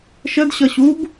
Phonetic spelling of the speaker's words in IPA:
ʃ ə d ɕ ʌ ɕ u b

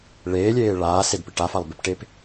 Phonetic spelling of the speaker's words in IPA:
ɭ eː lʲ eː ɭ aː s e d p ɪ ʈ a f a lˠ b ɪ p ʈ e p

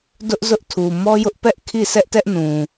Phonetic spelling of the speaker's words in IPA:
d ʊ˦ ʔ z ʊ˦ ʔ tʰ u˨ m ɔ˦ j ʊ˦ ʔ p ɛ˦ ʔ kʰ i˦˨ s ɛ˦ ʔ t ɛ˦ ʔ n ũ˨

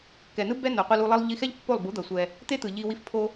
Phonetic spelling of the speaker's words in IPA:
k ɛ˨ n ɯ˦ b ɛ˦ n o˨ qʷ ɯ˧ l u˧ lˠ ʌ˦ lˠ ʎ i˧ x ɛ˦ ʎ pː o˦˨ lˠ b u˨˦ d̪ ʌ˨ sʷ ɛ˧ | t̪ e˦ t̪ ɯ˨ ʎ i˧ w i˦ f pʰ o˦

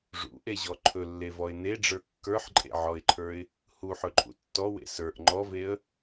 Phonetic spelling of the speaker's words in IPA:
ʐ ṵ ʔ e ʑ ɔ ǃʰ ɵ lː e v ɔ ɪ̯ n e ɖ͡ʐ ə˞ kː ə˞ ħ ǃʼ ḛ ʕ ɔ ɪ̯ ǃʰ ə˞ ɪ̯ | h u ħ ɵ ǃʼ ṵ tː ɔ w ḛ s ə˞ ʔ ŋ͡ǃ ɔ v e ə̯

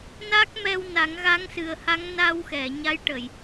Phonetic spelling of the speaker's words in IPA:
n a˦˥ k̚ m ɛ˧ w n a˨˩˦ ŋ ɣ a˧˥ ŋ s ɨ˨˩ ə̯ h a˧˥ ŋ n a˧ w x ɛ˨˩˨ ɲ a˧˥ j ʈ ə˨˩˨ j

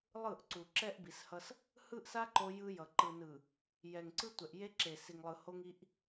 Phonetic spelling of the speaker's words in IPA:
lˠ ɯ˦˨ ʔ ǀ u˨ ǁ ɛ˦ ʔ b i˨ s h ʌ˦ s | h ɯ˦ ʔ s a˦ ǃ o˦ j ɯ˦ j ʌ˨ ǃ ɯ˨ n ɯ˨ | j ɛ˨ ŋ ǀ ɯ˦ tʷ ɛ˨ ʔ j e˦ ǁ e˨ s i˨ ŋ lˠ ɯ˨ h o˦ ŋ i˦ ʔ

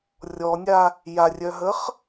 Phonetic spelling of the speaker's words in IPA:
rʲ ɔ nʲ a | j a rʲ œ ɦ əː χ

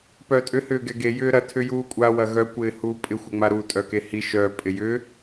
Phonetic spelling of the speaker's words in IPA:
p œ tʼ ʏ h ʏː ɡ ɛ ɡ e j ʏː ɾ ɐ tʰ ʏ j uː kʷʼ a w ɐ ɣ œ kʷ ɪː h uː pʼ ɪ xʷ ɛ ŋ͡m a ɾ u tʼ œ k e h i ʃ œ pʼ ɪ j ʏ

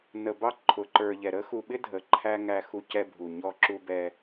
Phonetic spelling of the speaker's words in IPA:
n ə˨ b ɑ˦ ǃʰ ʊ˨ ǃ ə˞˨ ʎ ɛ˨ ɾ ə˦ x u˨ ɓ ɪ˦ dʱ ə˨ ǃʰ æ˦ ŋ æ˦ x u˦ c ɛ˦ bʱ u˨ ɲ ɔ˦ ǁ u˦ b ɛ˦

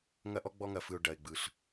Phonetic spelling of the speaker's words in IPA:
ŋ ɐ˦ ʔ ɔ˦ ɡ͡b ɔ˦ ŋ ɐ˨ f ɯ˨ ʊ̯ ɖ ɐ˨ ɪ̯ ɡ͡b ɯ˨ ɬ

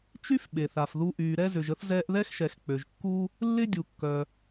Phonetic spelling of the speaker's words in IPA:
t͡ʃ y˥ f ɓ e˩ θ a˩ f ð u˧ ʔ yː˩ ɾ ɛ˧ z ʏ˩ ʒ ə˧ θ z ɛː˧ ʔ ð ɛ˥ x ʃ ɛ˩ x k͡p ø˩ ʒ kː u˧ | lː ɪ˥ dʲ u˩ kː œ˩

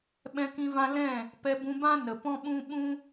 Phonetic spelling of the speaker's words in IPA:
ɓ ɛ̃˧ k ĩ˧ v ã˧ l ɛ̃˦˨ | p ɛ˧ b ũ˧ b ã˦ n ə˨ p ɔ̃˦ ɓ ũ˦ ɓ ũ˦

